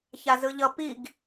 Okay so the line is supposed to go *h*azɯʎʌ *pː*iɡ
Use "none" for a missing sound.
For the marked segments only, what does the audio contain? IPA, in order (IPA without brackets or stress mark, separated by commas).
ç, p